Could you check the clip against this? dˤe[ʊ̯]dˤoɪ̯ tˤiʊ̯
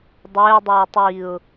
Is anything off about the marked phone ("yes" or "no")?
no